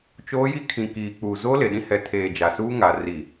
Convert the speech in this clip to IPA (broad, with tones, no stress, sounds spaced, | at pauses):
t͡ʃ oː˦ j i˦ kʰ ĩ˨ k iː˨ k͡p uː˨ z oː˦ l e˨ ɗ ĩ˦ h ɛ˨ tʰ eː˨ d͡ʒ a˨ s uː˦ ŋ a˨ r i˨